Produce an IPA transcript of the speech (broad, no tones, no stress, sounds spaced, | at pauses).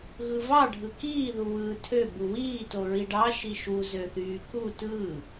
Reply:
ɣ ɯ v ɑ ɖʱ ɯ k iː ð u w ɯː tʰ ø b u w iː t o ɹ i ɖ ɑ ʃ i ʃ u z ø θ yː k u t ɯː